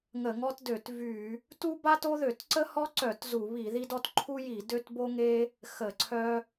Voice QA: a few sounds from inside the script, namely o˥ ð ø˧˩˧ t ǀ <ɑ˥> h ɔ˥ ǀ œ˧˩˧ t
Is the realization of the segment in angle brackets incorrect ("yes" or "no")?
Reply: yes